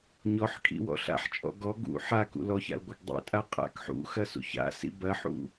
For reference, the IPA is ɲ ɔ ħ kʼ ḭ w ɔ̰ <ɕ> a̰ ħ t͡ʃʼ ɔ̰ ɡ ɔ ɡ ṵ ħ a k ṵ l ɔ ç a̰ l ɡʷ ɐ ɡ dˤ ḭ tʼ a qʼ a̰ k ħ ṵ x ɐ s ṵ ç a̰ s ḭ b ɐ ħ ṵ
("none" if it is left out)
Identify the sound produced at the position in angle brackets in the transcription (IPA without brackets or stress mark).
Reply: ɬ